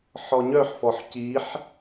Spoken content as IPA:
ħ ɔ ɲ œ ħ f ɔ ħ c i ħ

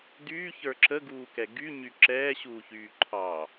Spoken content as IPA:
d yː ç ə˞ ǁ ə ɡ uː k ɛ ɡ y ɲ y ǁ ɛː ɕ uː ç yː ǃʰ ɑ

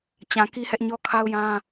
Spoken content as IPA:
t͡ɕ ã˨ k i˦ h ɛ˦ ʔ ɲ ɔ˦ kʰ a˦ ʊ̯ j ã˦

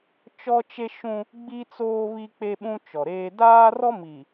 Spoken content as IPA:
t͡ʃ ɔ˦ t͡ʃ e˦ ʃ ũ˦ | ɡ͡b i˦ t͡s oː˦ β i˦ k͡p e˦ ɓ ũ˦ t͡ʃ ɔ˨ ɾ eː˦ d aː˦ r ɔ˦ m i˨

